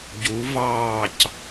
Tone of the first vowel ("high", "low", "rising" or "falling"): rising